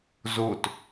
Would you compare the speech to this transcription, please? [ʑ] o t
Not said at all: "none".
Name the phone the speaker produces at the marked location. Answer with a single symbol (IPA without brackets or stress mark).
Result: z